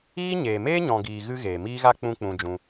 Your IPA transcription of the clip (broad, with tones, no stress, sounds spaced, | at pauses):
iː˦ ɲ eː˨ m eː˦ ɲ ɔ̃˨ ɡ iː˨ ɣ ɨ˦ ɣ eː˨ m iː˦ ɣ a˦ k͡p ũ˦ k͡p ũ˧ d͡ʒ ũ˧